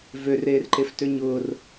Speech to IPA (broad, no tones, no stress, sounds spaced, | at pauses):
v ø r eː r ǃ e f t ø ɲ ʊː r